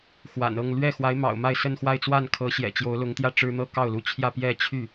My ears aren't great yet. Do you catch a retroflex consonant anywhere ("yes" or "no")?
yes